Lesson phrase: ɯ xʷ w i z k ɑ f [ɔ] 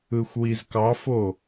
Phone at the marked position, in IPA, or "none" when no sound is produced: o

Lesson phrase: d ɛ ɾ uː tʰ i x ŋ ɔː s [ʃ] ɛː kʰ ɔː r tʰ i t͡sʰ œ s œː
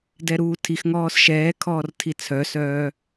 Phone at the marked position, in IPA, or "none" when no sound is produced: ʃ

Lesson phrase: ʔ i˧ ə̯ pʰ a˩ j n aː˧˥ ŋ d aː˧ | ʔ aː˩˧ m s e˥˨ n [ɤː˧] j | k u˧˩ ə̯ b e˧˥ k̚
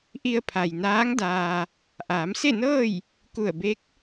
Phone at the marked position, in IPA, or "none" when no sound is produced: ɤː˥˨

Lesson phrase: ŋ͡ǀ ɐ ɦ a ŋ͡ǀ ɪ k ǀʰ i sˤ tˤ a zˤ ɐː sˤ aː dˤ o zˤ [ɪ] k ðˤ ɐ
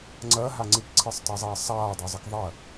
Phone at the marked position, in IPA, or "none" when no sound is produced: ɪ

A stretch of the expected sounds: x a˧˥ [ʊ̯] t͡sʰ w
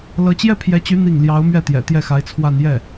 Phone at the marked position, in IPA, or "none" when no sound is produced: ɪ̯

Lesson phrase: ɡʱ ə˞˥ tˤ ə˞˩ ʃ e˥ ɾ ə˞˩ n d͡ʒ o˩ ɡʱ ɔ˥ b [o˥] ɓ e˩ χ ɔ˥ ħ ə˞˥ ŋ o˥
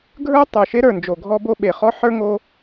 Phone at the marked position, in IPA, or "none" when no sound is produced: o˥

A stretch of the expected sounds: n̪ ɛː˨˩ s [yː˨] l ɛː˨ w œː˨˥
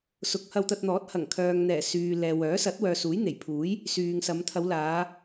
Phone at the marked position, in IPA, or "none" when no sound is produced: yː˨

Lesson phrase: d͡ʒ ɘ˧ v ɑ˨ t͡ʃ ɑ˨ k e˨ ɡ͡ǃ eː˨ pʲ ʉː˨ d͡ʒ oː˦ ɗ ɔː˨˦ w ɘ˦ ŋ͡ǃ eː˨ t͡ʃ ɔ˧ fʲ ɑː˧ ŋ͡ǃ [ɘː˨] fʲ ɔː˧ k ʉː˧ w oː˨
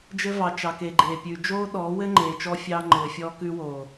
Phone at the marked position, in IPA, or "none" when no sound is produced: ɘː˨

